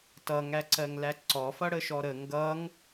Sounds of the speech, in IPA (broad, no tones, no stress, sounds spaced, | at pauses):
t ʌ ŋ æ ǀ ɜ ŋ l æ ǀ ɔ f ʌ ɽ ə ʃ ɔ ɾ ə ŋ ɡ ʌ ŋ